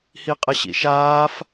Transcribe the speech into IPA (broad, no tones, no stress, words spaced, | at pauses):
hiqʼɐɕḭʃaːf